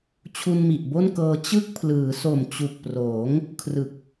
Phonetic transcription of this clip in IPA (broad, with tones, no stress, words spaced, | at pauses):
t͡ɕʰu˧nmi˨˩ʔbo˥˩nkɤː˧ t͡ɕɯ˥˩k̚ pʰlɯː˩˦so˨˩mt͡ɕu˨˩k̚proː˩˦ŋ | kʰrɯ˨˩k̚